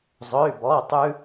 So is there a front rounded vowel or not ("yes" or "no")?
yes